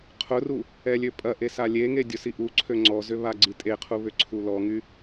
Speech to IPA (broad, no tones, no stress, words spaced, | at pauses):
qʰʊru | ɛlʲøpʼɐʔe salʲeŋe dʲʊsiʔuǀʰø ŋ͡ǀɔzʏ βaɡ͡ǀitʼeqʰu βʏǀʰulɔŋy